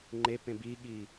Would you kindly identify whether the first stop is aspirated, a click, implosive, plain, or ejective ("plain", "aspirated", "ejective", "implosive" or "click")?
click